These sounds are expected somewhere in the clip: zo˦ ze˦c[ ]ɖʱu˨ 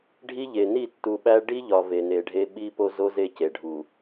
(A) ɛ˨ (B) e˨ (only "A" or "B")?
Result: B